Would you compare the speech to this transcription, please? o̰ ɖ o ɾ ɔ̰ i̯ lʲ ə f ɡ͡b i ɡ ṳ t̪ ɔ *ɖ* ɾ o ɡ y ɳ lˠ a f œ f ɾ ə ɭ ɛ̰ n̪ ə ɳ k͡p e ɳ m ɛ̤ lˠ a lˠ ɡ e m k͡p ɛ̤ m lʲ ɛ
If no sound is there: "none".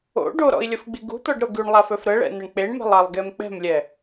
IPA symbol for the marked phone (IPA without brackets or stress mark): ɖ